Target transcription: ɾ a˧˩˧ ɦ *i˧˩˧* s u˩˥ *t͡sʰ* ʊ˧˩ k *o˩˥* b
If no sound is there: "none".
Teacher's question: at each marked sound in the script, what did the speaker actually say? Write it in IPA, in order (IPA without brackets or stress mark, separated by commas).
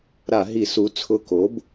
i˧˩˧, t͡sʰ, o˩˥